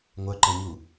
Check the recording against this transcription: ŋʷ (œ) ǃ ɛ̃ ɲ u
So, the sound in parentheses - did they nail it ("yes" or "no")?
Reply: yes